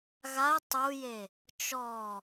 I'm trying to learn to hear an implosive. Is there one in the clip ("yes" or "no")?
no